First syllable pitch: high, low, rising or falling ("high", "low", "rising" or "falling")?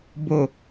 low